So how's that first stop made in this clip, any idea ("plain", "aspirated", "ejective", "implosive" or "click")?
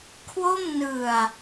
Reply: aspirated